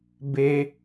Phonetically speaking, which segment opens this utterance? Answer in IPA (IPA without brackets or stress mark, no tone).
b